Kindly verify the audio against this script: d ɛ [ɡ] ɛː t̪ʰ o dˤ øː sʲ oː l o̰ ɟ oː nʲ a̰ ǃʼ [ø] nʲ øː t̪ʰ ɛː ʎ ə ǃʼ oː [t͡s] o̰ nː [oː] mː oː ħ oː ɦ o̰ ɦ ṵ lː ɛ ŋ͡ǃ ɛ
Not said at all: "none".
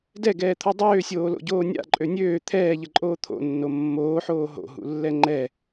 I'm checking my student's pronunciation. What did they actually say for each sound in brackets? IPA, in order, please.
ɡ, ø, t̪ʰ, o

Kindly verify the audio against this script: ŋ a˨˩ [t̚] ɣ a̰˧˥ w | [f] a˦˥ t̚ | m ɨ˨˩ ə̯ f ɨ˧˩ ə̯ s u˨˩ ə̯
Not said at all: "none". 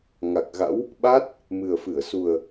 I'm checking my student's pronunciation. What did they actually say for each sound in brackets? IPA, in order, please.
k̚, ɓ

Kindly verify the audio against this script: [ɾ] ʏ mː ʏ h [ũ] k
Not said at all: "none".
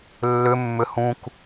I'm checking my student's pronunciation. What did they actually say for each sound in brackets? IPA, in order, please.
lː, ũ

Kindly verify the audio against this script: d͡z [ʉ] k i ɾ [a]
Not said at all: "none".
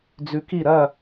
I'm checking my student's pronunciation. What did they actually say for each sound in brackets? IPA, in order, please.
ʉ, ɐ

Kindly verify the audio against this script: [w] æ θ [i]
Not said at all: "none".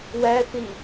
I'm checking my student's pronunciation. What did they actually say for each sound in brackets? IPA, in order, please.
w, i

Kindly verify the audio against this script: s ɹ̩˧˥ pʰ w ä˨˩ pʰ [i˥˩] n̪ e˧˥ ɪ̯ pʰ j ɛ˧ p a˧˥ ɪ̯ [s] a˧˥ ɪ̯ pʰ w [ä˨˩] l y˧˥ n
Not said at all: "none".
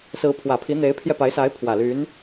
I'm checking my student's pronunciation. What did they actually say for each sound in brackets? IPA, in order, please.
i˧˥, s, ä˨˩

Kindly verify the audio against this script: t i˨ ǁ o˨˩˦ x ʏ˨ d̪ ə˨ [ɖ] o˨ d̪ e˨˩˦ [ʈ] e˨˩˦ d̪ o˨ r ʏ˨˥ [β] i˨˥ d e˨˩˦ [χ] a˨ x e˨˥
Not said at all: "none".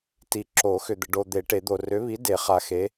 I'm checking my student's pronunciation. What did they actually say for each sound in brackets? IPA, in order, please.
ɖ, ʈ, β, χ

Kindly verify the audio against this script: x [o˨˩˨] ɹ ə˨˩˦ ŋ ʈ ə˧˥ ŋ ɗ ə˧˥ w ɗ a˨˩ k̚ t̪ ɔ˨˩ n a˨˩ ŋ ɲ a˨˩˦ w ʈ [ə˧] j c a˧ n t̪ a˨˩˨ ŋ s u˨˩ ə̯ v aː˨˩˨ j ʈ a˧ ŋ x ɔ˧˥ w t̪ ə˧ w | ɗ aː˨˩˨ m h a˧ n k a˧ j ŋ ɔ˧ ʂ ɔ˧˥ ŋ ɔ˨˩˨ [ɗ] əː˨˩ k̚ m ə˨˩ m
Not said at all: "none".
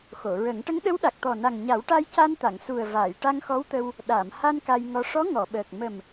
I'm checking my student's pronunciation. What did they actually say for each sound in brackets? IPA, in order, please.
o˨˩˨, a˧, ɓ

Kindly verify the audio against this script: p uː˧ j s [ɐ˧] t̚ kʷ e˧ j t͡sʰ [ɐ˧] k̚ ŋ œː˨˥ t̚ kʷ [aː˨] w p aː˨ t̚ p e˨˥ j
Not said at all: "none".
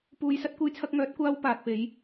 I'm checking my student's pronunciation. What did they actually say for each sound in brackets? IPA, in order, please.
ɐ˧, ɐ˧, aː˥

